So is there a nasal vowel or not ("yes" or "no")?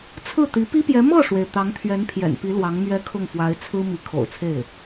no